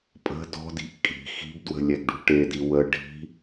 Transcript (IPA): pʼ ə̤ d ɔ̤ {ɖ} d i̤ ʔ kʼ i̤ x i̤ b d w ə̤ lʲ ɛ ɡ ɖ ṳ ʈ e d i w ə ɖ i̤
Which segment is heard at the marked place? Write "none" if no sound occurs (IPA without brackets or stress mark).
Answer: none